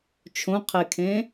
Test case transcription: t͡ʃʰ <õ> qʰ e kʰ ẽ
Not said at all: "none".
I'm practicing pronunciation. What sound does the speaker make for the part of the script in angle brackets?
õ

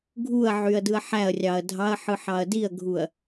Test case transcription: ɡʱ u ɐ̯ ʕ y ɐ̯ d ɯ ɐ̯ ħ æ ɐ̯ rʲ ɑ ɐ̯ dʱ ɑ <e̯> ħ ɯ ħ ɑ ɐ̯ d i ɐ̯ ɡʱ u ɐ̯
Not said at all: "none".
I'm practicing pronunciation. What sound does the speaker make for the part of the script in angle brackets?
ɐ̯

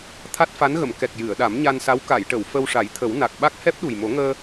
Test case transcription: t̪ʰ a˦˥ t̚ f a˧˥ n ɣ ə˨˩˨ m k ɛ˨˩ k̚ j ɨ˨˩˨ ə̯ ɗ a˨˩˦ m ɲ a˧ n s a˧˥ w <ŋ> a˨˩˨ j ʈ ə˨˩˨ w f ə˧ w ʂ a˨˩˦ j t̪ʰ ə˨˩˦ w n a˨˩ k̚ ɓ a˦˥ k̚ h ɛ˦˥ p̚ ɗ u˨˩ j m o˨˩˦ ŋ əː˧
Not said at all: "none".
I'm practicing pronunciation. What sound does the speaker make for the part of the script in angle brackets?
k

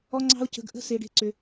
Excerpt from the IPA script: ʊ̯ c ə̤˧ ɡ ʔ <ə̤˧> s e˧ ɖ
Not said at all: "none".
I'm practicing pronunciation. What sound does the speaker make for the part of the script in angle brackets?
ə̤˦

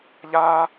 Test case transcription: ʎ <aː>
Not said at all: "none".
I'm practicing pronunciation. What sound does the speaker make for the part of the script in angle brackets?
aː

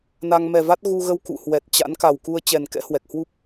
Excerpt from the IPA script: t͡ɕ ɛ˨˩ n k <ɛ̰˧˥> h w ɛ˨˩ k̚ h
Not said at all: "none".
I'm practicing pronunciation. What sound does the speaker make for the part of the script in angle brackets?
ɛ̰˧˥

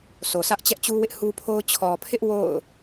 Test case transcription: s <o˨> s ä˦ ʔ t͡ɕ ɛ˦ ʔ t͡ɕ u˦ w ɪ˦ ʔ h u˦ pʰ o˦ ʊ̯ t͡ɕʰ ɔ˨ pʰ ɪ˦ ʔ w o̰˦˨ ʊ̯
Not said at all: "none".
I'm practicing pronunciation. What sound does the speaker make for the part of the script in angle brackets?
o˨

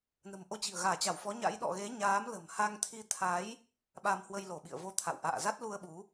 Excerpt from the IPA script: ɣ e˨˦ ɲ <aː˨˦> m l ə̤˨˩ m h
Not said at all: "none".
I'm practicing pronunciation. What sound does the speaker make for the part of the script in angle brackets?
aː˨˦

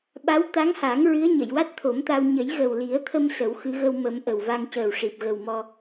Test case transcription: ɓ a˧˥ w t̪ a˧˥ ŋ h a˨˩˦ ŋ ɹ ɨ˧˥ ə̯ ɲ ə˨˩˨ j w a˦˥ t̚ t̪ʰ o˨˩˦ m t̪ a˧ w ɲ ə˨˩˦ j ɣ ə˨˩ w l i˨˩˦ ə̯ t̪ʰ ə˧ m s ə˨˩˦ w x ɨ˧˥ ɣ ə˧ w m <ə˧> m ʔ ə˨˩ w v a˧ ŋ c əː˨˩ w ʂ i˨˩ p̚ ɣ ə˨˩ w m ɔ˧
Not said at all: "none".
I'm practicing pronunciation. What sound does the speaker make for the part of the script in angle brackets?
ə˨˩˦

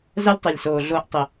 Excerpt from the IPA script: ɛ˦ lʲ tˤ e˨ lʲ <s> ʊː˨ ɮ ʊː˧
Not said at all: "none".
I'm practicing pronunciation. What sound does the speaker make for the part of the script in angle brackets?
s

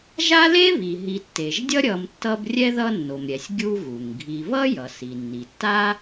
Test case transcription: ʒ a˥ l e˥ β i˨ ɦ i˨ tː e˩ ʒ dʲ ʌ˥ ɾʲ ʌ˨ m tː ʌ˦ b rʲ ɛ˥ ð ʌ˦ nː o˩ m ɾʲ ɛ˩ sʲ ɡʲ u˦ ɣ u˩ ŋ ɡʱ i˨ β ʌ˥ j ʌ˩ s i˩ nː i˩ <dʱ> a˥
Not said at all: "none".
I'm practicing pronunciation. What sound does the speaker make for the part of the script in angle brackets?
tː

